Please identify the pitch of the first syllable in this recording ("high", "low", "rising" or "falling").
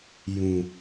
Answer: low